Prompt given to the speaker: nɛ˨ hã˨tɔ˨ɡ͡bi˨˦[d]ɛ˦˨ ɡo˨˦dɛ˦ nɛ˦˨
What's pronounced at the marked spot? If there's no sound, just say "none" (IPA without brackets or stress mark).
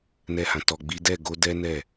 d